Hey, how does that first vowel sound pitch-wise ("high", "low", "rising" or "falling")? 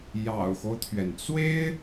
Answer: low